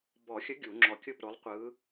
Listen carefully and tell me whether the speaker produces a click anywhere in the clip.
yes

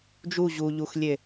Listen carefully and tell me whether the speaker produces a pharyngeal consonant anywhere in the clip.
no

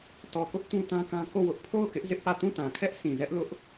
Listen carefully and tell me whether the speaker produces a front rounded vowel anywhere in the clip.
no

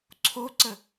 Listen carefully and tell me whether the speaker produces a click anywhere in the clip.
yes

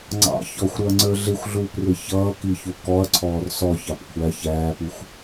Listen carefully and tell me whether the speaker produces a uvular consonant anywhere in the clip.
no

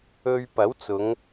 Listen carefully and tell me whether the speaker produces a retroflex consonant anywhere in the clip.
no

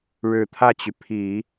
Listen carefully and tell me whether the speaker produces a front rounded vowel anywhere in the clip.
yes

